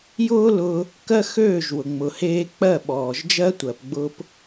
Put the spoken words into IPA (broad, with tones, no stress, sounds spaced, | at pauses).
j ʊː˦ l ʊː˧ | k ɜ˦ x øː˦˨ ʒ w ʊ˨ ŋ͡m ʊ˨ h eː˧ k͡p ɜ˦˨ ɓ ɔː˨ ʒ d͡ʒ ɜ˦ tʷ ɜ˧ p ɡ͡b ʊː˦ p